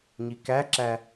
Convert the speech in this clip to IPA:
ɲ i k æ ǁ æ

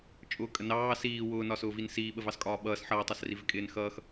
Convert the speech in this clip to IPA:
t͡ʃʼ ʊː kʼ ə n ɑː s iː w ʊː n ɒ s ʊː v i n s iː ɓ ə v ɑ s kʼ ɒː ɓ ʌː s ħ ʌː tˤ ɑ s r i v ɪ kʼ ɪː n x ʌː x

